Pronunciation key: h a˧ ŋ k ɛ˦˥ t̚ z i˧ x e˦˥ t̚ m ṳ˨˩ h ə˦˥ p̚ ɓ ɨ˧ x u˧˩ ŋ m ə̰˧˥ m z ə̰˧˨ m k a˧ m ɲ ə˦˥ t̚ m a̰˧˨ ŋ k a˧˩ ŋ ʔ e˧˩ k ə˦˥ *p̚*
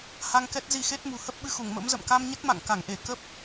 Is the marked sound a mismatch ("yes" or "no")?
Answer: no